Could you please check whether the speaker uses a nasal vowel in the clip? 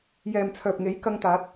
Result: no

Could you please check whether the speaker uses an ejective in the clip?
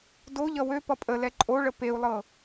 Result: yes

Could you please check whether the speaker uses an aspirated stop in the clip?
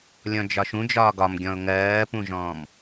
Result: no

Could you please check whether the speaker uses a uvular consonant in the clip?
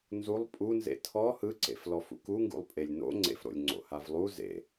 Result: no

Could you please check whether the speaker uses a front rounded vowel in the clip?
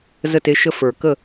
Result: no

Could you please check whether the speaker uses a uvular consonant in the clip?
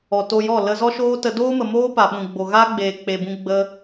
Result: no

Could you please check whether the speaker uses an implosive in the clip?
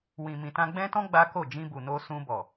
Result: no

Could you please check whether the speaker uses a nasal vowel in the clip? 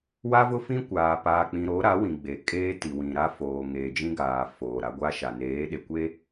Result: yes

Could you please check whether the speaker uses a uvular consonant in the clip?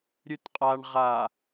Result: yes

